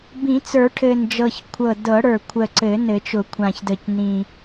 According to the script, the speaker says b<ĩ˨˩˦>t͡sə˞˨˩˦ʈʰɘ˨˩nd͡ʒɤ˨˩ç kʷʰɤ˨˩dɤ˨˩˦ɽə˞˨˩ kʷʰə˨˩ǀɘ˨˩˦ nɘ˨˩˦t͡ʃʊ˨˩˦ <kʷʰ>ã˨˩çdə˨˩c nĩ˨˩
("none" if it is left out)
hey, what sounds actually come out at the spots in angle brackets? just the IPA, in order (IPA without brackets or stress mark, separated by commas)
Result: ĩ˨˩˦, kʷʰ